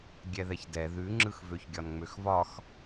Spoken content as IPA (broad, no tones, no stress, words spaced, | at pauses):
ɡʲɛðɛçdɛ ðʉŋ͡ǁɯx vøçɡʲɒnŋ͡møxvɒx